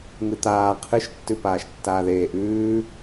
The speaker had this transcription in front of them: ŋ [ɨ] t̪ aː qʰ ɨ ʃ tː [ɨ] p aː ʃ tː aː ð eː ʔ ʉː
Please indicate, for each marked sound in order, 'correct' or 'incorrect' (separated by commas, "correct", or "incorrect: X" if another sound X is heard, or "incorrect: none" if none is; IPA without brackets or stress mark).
correct, incorrect: ʉ